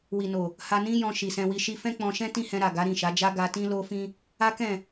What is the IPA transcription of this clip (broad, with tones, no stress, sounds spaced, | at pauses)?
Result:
w i˨ n o˨ | h a˧ n ĩ˦ j ɔ̃˧ ʃ i˨ s ɛ̃˧ w i˧ ʃ i˦ f ɛ̃˦ k͡p ɔ̃˧ ʃ ɛ̃˦ t ĩ˦ h ɛ̃˧ ɾ a˨ ɡ a˨˦ ɾ ĩ˦˨ ʃ a˨˦ d͡ʒ a˦ ɡ a˧ t ĩ˦ l o˦ f ĩ˦ | a˦ k ɛ̃˦˨